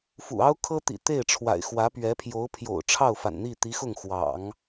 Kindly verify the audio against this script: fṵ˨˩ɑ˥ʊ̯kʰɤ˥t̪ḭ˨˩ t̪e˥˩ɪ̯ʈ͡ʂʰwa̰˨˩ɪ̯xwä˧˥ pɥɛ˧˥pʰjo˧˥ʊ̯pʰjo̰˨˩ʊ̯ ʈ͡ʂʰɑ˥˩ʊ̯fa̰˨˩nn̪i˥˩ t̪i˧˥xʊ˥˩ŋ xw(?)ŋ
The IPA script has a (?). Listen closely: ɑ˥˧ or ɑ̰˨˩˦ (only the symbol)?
ɑ̰˨˩˦